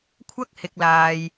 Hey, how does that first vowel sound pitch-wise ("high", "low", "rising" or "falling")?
high